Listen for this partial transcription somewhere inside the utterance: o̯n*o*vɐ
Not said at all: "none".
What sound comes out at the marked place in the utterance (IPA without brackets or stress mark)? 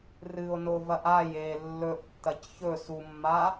o